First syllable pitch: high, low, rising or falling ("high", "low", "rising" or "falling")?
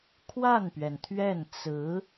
falling